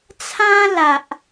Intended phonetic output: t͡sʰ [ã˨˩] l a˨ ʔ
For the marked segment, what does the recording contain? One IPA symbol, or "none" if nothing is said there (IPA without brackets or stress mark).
ã˦